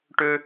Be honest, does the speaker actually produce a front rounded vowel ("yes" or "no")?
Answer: yes